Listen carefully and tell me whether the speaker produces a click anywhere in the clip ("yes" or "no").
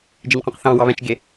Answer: no